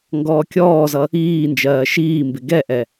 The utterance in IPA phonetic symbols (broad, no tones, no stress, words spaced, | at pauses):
ŋɡɔːkʲɔːzʌ | iːnd͡ʒɜː ʃiːmbɪ ɡɛʔɛ